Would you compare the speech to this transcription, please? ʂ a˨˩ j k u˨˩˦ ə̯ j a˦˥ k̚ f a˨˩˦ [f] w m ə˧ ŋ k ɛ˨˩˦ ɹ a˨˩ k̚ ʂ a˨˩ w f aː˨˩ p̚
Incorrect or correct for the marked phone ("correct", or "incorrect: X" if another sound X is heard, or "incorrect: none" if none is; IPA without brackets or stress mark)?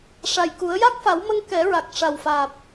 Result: incorrect: none